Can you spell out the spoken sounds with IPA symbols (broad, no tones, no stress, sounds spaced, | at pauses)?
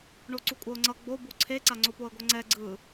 ɳ o ǀ u kʷʼ ʌ ʊ̯ ŋ͡ǀ ʌ ɡ͡b o b u ǀʰ e ǀ a ŋ͡ǀ o p o ə̯ ɡʷ ʌ ŋ͡ǀ ɛ ɡ͡ǀ ɯ